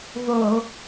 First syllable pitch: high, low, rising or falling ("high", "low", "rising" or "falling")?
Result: low